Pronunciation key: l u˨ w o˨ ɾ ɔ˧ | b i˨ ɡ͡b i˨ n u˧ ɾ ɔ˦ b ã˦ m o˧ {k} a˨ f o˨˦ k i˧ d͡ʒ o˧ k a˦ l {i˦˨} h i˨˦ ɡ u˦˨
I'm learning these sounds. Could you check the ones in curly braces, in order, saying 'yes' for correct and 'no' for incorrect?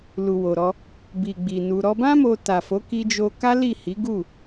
no, yes

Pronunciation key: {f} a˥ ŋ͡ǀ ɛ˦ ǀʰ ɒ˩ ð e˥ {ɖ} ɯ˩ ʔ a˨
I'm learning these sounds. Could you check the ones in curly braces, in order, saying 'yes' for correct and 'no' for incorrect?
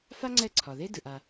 yes, no

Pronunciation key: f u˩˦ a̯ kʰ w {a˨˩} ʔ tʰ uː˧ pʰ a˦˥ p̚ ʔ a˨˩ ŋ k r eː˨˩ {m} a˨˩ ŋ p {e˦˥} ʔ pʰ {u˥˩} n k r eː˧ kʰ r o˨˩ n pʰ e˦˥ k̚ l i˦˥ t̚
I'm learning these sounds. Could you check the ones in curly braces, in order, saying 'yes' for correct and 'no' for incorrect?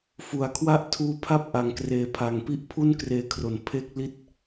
no, no, no, yes

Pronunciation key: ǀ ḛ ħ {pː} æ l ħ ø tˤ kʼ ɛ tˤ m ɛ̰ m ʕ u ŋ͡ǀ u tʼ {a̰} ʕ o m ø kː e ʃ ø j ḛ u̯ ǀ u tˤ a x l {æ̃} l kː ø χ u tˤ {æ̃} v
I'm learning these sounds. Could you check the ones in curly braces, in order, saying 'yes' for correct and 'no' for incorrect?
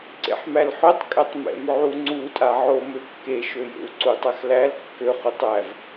no, no, no, no

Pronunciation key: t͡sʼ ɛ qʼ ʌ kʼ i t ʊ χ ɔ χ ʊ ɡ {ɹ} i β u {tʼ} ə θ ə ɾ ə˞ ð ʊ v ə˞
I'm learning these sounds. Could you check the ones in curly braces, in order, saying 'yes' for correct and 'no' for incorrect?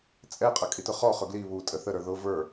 no, yes

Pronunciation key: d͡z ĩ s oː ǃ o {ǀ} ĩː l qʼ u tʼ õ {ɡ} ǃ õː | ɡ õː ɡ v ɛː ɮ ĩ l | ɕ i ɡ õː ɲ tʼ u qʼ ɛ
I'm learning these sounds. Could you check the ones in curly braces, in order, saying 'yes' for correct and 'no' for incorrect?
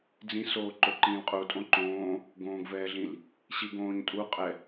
no, no

